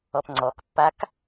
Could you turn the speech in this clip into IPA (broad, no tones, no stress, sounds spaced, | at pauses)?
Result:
ɔ p ŋ͡ǀ ɔ k pː a k